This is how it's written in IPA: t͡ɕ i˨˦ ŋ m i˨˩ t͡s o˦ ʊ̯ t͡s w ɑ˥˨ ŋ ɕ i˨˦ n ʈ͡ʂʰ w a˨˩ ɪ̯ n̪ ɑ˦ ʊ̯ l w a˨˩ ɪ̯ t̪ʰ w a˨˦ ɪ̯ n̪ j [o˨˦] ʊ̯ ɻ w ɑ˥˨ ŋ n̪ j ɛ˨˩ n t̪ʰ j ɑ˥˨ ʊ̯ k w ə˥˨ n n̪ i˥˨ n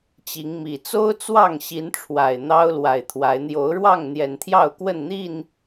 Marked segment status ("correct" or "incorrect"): correct